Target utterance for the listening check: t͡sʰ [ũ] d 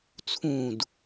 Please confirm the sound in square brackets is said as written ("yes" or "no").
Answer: yes